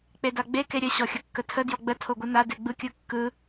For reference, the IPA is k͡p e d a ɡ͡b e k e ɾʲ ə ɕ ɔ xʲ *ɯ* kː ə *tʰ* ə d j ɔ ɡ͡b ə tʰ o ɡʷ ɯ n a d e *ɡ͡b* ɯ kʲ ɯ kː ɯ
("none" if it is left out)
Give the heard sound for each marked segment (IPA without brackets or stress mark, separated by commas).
ə, tʰ, ɡ͡b